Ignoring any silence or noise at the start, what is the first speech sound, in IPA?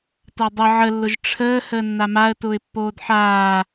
t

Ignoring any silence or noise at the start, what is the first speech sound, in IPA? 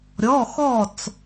ɾʲ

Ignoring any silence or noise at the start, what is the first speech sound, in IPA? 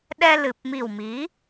ɗ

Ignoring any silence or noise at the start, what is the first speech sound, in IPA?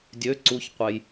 dʲ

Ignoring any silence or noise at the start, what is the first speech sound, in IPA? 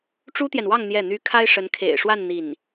ʈ͡ʂ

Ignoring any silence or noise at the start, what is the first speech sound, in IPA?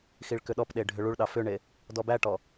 x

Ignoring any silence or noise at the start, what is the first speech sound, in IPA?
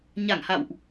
ɲ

